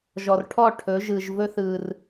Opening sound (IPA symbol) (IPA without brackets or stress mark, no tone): ʒ